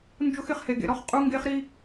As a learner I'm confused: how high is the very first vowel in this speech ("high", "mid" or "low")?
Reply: high